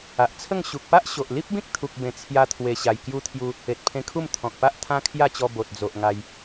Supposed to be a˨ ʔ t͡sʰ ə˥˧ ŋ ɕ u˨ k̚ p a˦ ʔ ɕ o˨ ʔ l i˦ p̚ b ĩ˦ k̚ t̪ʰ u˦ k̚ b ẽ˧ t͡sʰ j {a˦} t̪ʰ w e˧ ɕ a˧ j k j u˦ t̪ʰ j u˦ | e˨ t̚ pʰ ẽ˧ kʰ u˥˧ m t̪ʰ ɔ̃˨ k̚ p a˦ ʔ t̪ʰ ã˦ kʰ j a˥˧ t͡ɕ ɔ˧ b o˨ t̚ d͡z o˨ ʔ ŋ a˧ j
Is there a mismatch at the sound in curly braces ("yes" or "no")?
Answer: no